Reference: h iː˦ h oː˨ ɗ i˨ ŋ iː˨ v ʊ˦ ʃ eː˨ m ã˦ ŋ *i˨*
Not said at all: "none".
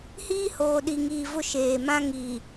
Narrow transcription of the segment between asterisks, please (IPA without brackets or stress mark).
i˨